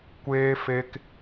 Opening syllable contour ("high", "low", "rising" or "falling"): high